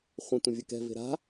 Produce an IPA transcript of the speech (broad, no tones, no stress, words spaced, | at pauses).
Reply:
χʷə̃ tʷə̃vʲəkɛ̤ ve̤ɾa̤